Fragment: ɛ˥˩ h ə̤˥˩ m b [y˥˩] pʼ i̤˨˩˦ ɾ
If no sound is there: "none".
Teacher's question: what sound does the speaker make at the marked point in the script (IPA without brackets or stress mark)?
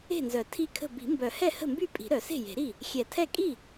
y˥˩